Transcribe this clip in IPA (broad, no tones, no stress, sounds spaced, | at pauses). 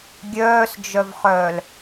ɡʲ œː s d͡ʒ œ v χ œː l